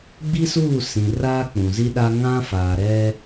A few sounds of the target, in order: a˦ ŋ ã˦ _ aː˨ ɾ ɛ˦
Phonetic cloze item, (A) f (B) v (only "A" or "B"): A